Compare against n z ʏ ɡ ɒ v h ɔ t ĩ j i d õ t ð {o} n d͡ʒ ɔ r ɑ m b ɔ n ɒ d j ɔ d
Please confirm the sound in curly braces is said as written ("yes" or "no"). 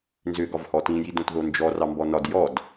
yes